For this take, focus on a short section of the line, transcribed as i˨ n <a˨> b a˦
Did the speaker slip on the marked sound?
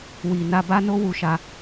yes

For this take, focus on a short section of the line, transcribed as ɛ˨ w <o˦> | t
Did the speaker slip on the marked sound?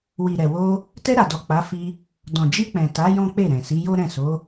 yes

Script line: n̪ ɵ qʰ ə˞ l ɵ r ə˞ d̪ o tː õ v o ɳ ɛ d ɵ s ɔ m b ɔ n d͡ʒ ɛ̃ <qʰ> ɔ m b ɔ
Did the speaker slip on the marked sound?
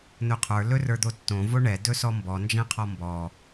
no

